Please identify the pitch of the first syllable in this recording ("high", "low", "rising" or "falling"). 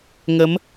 rising